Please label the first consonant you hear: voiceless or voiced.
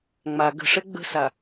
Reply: voiced